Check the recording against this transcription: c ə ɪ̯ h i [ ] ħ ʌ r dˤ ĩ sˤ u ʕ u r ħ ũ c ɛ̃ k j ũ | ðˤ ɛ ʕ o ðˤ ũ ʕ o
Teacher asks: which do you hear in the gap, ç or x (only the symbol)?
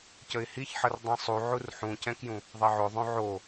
ç